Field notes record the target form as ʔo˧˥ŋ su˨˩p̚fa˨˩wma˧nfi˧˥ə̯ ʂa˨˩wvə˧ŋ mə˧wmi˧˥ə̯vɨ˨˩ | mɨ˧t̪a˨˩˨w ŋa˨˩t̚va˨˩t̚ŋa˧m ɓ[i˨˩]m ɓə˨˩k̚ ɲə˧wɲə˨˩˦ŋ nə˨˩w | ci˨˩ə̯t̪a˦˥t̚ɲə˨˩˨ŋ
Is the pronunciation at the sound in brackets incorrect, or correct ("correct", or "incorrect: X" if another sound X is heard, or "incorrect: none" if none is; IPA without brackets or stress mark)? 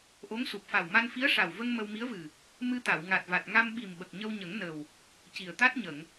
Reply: correct